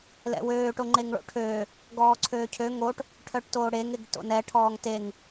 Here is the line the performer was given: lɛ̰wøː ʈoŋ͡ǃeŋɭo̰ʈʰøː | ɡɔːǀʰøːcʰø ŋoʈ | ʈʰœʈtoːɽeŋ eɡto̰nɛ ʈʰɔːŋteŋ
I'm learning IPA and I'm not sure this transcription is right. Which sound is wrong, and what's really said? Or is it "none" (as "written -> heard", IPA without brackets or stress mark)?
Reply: none